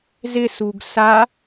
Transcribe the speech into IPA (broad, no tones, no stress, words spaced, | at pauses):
zɪ suɡsa